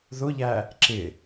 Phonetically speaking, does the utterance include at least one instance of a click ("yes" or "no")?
yes